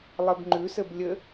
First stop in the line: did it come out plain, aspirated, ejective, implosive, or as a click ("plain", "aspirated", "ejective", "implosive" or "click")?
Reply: plain